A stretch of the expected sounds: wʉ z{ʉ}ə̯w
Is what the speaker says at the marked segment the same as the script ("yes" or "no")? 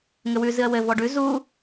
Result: no